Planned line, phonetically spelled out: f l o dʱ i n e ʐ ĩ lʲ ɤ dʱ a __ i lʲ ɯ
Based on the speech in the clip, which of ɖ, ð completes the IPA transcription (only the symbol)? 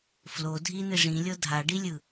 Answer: ɖ